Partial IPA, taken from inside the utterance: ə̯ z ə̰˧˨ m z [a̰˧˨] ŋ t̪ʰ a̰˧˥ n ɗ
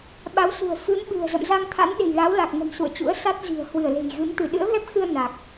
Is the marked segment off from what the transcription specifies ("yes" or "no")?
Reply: yes